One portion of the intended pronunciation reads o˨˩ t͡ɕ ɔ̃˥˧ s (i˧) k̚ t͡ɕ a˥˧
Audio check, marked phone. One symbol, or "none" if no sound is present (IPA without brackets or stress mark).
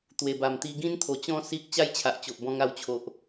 i˦